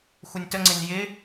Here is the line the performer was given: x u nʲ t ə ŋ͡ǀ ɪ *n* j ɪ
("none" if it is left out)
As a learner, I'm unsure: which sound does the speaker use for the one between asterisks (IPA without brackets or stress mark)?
n